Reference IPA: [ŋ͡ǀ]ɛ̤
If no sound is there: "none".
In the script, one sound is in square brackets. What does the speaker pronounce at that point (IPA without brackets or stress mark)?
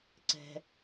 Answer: ǀ